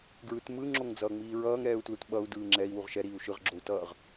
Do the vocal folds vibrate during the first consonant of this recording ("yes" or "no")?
yes